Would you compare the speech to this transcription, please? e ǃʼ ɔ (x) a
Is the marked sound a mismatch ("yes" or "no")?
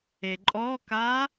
yes